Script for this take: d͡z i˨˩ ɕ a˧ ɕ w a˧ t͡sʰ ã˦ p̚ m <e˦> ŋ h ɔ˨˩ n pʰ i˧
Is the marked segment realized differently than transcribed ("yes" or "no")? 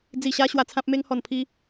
yes